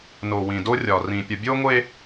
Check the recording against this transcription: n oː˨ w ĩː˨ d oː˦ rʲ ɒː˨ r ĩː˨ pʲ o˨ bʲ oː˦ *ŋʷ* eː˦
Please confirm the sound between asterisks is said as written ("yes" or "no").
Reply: yes